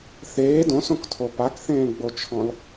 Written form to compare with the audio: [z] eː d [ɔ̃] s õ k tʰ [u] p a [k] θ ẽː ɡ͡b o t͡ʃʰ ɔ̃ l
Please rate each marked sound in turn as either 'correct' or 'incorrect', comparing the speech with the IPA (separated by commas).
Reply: incorrect, incorrect, incorrect, correct